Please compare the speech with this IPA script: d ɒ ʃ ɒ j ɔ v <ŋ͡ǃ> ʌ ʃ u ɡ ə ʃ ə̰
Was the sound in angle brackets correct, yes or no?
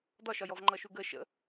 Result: yes